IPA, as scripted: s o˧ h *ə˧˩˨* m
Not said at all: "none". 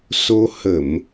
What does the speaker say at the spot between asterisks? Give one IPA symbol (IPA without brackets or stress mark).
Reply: ə˧˩˨